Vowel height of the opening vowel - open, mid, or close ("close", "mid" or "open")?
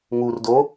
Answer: close